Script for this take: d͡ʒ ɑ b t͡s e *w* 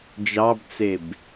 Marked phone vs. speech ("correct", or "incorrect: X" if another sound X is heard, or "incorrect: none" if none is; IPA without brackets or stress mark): incorrect: b